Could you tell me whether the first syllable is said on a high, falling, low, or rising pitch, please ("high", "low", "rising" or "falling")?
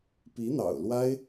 rising